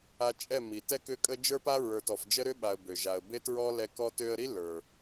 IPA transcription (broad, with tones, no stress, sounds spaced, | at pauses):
a˧ t͡ʃʼ ɛ˦˨ m i˨ t ɛ˦ k ʏ˦˨ kʼ ə˦ d͡ʒ ə˞˦ p a˦ ɹ ə˞˨ t ɔ˨ f d͡ʒ ə˦ ɾ ʏ˦ ɓ a˨ ə̯ b ø˨ ʒ a˨ ə̯ b e˦ t ɹ ɔ˦ l ɛ˧ k ɔ˦ t ø˧ ə̯ ɾ i˦ l ə˞˨